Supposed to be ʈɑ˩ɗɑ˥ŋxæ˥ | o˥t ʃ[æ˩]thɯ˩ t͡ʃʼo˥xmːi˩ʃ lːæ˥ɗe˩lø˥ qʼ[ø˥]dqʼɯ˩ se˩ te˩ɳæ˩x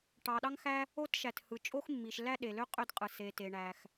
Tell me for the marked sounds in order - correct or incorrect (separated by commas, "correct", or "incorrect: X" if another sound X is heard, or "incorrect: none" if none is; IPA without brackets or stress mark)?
correct, correct